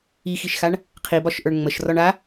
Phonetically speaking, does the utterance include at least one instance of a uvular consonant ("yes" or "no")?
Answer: yes